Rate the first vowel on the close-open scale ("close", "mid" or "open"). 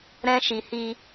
mid